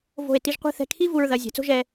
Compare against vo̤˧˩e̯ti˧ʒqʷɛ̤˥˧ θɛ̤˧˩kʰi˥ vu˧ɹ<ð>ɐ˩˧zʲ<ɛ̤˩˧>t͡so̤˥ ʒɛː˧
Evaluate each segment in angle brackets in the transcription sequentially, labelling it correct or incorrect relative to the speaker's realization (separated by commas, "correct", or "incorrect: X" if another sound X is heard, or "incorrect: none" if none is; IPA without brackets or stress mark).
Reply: correct, correct